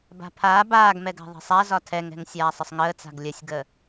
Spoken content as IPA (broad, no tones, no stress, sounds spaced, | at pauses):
b a̤ pʰ aː b aː ɡ m ɛ ɡ a̤ ðˤ ɛ̤ sˤ a z ɒ tʰ ɛ ŋ ɛ̤ ŋ sʲ aː sˤ ə sˤ ŋ əː t͡s a̤ ɡ lʲ ə sʲ ɡ ə